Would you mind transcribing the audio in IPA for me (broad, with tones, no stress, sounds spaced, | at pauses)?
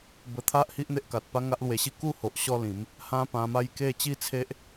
b ə˨˩ t̪ʰ a˦ ʔ h i˦ ʔ n̪ e˦ ʔ k a˨ t̚ p a˦ ŋ a˦ ʔ l w e˧ ɕ i˥˧ k u˥˧ h o˨ ʔ ɕ ɔ˦ l ĩ˨˦ m | h ã˦ p ã˧ m a˥˧ j k e˥˧ t͡ɕ i˦ t͡sʰ e˦ ʔ